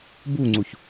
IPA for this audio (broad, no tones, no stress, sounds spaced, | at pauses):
b u ŋ͡ǀ u ç